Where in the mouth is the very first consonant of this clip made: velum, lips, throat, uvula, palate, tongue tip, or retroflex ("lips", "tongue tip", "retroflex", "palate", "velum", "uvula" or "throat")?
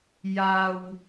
palate